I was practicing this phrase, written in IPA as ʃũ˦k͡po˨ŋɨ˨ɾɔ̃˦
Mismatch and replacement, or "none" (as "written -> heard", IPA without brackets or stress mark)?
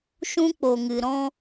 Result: none